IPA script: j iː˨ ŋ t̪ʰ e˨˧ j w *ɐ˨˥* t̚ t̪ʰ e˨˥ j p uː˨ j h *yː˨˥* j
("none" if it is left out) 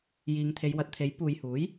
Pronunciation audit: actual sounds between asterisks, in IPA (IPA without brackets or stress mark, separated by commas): ɐ˨˥, uː˨˥